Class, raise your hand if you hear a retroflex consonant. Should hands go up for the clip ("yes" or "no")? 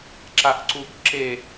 no